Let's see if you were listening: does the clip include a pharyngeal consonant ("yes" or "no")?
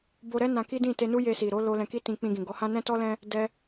no